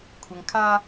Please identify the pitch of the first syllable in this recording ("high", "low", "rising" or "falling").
low